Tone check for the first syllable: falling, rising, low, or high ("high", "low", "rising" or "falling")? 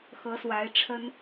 rising